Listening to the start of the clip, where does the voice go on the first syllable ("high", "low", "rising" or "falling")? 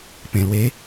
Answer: low